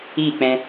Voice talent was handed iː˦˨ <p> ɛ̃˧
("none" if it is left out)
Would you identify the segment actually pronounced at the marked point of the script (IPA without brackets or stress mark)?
k͡p